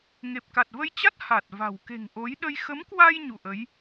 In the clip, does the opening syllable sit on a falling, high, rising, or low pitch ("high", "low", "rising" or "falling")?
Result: low